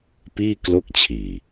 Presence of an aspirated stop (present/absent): present